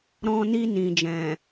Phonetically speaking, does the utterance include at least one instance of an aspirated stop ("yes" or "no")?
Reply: no